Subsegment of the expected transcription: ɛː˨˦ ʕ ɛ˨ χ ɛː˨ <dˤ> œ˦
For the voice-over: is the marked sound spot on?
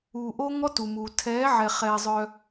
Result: no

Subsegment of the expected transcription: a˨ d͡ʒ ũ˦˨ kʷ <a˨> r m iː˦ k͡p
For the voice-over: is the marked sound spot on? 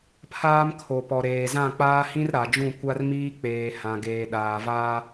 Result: no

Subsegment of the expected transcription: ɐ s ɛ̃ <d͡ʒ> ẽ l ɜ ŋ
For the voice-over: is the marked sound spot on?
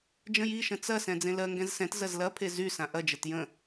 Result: no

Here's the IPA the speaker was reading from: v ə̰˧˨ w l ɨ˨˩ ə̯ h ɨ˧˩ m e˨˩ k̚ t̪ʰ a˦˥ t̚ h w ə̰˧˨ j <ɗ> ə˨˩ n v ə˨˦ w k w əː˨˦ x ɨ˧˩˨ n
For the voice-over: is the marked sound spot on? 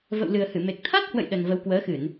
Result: yes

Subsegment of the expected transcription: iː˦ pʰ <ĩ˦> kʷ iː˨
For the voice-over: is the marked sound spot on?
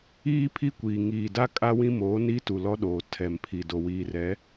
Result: no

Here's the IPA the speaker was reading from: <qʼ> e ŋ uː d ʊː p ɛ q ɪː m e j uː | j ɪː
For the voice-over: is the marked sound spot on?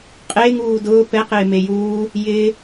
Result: yes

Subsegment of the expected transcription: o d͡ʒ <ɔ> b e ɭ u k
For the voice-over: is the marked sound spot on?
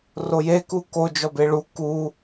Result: yes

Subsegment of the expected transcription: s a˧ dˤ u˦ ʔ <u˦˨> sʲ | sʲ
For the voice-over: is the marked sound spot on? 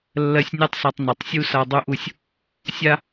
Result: yes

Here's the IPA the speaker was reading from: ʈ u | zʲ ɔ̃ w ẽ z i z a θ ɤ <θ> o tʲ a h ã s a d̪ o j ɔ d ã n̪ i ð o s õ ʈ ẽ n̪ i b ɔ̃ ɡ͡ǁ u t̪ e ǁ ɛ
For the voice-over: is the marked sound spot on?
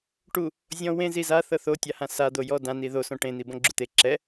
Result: yes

